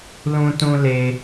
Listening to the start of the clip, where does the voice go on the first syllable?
high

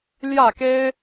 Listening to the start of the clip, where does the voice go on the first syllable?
falling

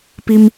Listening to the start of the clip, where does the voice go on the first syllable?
low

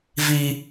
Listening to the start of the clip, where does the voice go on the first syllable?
high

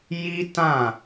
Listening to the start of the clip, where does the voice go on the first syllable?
high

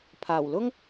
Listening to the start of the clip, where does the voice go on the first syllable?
low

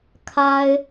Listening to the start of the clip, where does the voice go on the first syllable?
high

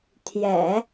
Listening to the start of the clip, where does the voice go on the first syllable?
low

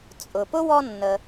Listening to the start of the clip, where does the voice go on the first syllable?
low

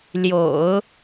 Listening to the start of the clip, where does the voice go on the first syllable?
low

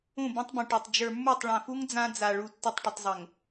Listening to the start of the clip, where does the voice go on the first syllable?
falling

